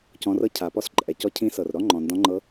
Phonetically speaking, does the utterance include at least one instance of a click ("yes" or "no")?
yes